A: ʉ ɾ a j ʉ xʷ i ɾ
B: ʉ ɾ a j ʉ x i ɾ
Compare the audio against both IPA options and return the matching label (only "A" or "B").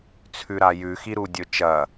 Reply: B